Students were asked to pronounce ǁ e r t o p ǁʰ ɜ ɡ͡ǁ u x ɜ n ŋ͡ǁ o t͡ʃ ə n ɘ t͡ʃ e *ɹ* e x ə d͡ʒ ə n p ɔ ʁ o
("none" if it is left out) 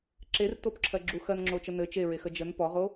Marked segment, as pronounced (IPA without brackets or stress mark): ɹ